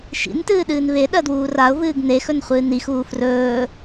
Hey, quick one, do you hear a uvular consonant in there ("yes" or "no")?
yes